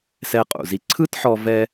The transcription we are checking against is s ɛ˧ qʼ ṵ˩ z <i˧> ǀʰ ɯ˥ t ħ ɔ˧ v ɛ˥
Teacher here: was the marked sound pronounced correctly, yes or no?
yes